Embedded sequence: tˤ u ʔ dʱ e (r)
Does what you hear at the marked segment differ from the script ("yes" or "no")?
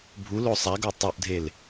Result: yes